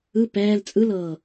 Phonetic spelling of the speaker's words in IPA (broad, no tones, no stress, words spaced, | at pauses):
ɯ pɛːl t͡sʼɯlɤː